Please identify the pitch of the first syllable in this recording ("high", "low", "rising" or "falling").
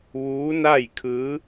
rising